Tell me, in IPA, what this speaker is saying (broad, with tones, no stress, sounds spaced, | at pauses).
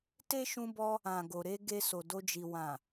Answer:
t e˦ ʃ ũ˧ b ɔ˧ | ã˨ ɡ o˨ ɾ e˧ ɡ e˧ s o˨ d o˧ d͡ʒ i˨ w ã˨